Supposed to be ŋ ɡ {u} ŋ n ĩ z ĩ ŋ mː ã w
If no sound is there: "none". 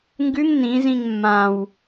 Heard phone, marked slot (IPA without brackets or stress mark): ʉ